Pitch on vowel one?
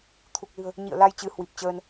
low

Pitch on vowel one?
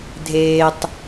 low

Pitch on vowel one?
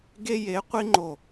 high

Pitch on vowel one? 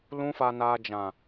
high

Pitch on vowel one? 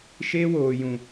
high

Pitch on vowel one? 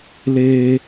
high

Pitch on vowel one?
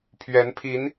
rising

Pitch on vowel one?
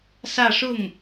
falling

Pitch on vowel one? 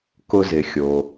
high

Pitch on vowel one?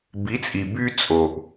rising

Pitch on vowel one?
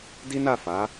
high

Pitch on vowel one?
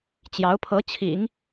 rising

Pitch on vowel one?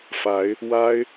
rising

